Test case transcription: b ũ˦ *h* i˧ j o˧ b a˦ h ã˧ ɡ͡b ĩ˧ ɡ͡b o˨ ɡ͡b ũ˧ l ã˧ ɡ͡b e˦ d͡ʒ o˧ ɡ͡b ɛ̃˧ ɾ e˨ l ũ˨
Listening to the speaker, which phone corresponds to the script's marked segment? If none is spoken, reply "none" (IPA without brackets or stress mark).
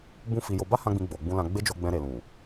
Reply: f